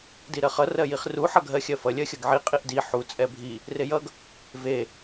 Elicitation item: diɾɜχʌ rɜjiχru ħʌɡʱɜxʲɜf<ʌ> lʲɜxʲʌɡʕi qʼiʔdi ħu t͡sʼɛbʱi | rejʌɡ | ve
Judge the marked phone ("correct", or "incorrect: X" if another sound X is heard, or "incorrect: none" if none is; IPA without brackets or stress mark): correct